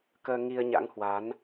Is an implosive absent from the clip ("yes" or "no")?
yes